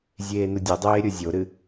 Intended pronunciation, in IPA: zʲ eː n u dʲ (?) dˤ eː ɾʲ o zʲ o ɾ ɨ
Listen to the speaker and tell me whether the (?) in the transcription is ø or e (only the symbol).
e